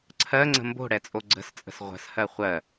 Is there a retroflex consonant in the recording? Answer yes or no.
yes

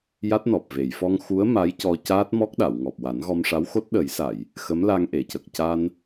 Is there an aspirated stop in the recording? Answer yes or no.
no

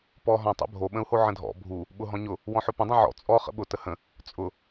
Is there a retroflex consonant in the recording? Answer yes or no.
no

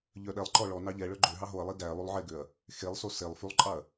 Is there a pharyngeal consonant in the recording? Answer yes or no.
yes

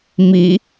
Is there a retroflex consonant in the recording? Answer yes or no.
no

